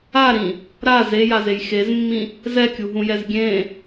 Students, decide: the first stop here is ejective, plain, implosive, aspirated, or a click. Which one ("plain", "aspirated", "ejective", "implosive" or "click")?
plain